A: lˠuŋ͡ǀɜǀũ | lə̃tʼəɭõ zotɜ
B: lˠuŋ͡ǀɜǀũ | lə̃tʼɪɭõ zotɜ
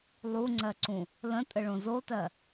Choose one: A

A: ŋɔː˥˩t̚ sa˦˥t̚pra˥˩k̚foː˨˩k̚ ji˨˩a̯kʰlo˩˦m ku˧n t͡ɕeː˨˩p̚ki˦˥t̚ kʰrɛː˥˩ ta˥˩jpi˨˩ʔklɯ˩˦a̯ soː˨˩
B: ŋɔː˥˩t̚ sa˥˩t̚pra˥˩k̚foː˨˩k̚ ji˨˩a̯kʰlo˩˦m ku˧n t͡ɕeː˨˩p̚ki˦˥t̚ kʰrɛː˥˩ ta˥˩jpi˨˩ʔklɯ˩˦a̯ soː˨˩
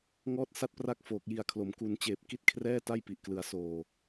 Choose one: B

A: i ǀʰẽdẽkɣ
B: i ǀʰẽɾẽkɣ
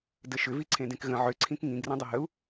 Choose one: A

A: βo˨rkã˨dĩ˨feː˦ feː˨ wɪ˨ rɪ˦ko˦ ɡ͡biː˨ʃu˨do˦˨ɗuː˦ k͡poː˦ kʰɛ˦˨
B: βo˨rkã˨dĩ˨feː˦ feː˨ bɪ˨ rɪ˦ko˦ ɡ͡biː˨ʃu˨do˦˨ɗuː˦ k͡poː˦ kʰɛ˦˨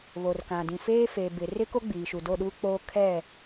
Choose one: B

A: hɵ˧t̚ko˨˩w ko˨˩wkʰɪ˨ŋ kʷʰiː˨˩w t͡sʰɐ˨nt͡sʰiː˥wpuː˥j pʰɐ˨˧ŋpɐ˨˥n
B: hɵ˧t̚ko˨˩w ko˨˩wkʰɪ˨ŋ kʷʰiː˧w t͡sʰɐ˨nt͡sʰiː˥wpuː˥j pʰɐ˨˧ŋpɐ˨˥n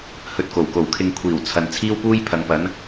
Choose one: A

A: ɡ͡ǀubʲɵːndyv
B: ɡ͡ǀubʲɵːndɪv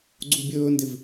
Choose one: B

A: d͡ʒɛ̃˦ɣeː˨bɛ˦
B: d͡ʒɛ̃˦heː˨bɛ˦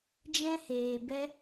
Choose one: B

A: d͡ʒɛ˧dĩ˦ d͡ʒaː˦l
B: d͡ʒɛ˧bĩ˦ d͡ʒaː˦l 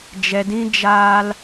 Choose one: A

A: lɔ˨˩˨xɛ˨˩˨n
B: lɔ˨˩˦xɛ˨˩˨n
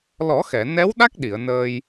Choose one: B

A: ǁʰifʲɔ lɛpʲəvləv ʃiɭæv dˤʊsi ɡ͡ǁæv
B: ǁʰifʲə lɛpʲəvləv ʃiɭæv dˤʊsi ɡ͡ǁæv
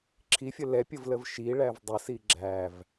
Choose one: B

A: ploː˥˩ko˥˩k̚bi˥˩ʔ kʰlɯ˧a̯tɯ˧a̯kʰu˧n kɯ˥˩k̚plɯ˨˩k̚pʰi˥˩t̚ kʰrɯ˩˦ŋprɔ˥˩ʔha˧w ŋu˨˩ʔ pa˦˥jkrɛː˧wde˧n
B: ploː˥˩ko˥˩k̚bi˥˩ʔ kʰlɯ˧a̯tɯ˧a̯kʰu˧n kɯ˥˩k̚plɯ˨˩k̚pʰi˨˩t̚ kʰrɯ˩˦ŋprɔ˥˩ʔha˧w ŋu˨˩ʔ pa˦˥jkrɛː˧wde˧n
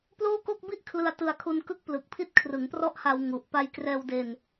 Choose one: A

